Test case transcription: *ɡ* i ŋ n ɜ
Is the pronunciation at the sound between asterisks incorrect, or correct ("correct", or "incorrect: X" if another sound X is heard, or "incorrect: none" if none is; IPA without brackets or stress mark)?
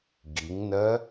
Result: correct